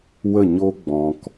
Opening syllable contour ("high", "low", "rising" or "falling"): falling